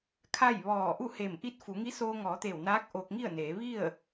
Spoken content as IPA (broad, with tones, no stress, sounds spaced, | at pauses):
kʰ a˥˨ j ʋ ɔː˧˩ ʔ u˥˨ h eː˧˩ m ʔ i˧˥ t̚ f u˩˧ ŋ i˧˥ s oː˧ ŋ ɔː˩˧ t̪ eː˧˩ w n aː˧˥ k̚ ʔ oː˧ k̚ ŋ i˥˨ ə̯ n eː˩˧ ʋ i˥˨ ə̯